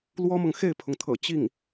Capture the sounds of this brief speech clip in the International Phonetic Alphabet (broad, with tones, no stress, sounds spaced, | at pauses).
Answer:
l w ɔ˥ m ɤ˨ ŋ x e˥˩ ɪ̯ pʰ ʊ˩ ŋ t̪ʰ ɤ̰˨˩ t͡ɕ i˥˩ ŋ